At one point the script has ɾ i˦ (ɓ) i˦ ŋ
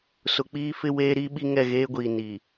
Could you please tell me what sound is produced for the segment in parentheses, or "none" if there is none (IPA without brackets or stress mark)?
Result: ɓ